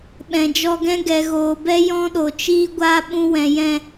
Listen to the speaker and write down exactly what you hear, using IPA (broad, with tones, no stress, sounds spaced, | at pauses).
ɓ ɛ̃˨ d͡ʒ ɔ˧ ɡ ɛ̃˦ ɡ ɛ˨ ɣ oː˨ b ɛ˦ j ɔ̃˦ ɗ o˨ t͡ʃ iː˦ ɡʷ a˦ ɓ ũ˧ w ɛ̃˨ j ɛ̃˦˨